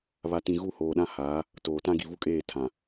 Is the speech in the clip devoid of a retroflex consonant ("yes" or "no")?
yes